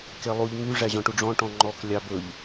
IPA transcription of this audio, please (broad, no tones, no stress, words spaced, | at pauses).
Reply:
kelˠuʎ ŋy ʐæʑɔ̃ʈuɖ͡ʐɔ̃ ʈɔ̃ŋ͡ǃɔk lʲɑbɵʎ